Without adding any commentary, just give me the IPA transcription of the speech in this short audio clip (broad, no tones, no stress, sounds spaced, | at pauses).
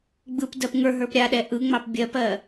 ɡ͡b ɯ p d ɜ p ŋ ə˞ ɦ ə˞ p ɾʲ a ɗ ɛ ʔ ɯ ŋ͡m ɑ p bʲ ɜ p ɜ